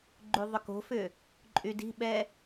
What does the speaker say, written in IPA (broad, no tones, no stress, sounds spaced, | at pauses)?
ɡ͡ǃ y ðˤ ʏ k o̤ f ʏ | ǃʼ y d i̤ ɓ ɛ